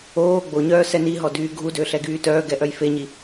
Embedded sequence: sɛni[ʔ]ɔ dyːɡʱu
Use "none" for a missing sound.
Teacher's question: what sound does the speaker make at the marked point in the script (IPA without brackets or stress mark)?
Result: ɦ